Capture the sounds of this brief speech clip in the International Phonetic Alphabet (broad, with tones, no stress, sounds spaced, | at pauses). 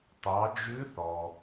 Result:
t ɑ˩˧ d͡ʒ ʉ˧˥ θ ɔ˩